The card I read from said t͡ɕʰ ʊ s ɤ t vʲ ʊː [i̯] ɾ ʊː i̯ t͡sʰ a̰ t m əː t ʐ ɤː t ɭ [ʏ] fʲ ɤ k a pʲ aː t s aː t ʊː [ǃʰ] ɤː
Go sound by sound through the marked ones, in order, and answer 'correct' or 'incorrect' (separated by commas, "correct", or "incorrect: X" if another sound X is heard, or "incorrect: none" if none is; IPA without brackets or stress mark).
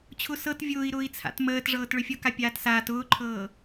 correct, correct, correct